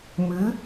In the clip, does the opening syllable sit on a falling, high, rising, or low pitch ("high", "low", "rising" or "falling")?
rising